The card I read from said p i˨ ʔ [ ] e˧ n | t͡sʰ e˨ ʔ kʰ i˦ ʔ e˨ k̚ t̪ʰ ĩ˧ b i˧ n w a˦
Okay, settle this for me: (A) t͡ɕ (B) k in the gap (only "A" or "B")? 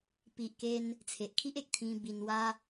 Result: B